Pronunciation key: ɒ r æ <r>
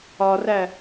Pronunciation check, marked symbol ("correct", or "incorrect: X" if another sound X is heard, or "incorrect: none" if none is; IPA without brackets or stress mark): incorrect: none